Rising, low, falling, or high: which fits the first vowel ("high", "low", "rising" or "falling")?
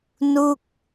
falling